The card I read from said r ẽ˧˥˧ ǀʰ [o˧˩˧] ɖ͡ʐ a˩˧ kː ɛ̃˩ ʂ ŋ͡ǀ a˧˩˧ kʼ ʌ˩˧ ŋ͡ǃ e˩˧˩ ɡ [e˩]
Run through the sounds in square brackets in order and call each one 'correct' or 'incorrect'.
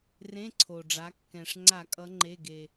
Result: incorrect: o˩, correct

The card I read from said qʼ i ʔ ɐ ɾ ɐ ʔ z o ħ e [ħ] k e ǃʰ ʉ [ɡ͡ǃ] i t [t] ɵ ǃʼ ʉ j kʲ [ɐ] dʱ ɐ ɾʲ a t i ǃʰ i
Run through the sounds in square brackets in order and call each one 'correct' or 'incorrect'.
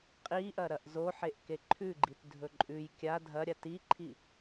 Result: incorrect: ʔ, correct, incorrect: dʱ, incorrect: a

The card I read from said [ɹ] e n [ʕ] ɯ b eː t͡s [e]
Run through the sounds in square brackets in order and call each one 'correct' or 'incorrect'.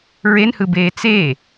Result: correct, incorrect: h, correct

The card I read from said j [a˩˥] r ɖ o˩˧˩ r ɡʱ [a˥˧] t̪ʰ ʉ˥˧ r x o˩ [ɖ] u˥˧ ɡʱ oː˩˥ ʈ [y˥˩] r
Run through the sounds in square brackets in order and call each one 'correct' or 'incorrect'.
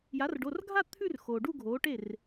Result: correct, correct, correct, incorrect: e˥˩

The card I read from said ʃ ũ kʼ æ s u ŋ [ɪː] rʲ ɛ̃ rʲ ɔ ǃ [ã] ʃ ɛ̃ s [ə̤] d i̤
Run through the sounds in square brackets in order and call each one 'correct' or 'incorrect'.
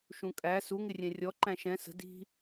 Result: incorrect: ɪ, incorrect: æ̃, correct

